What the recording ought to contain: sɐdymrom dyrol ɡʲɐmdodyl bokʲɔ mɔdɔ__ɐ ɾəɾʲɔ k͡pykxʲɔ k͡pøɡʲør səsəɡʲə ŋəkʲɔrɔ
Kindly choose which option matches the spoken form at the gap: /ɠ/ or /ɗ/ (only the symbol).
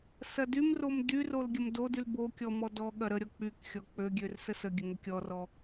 ɠ